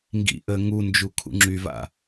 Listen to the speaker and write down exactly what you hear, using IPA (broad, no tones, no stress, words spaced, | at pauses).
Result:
ŋɡḭ ʔə ŋund͡ʒu kʰṵŋ͡ǁyva̰